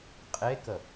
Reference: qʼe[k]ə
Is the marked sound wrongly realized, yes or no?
no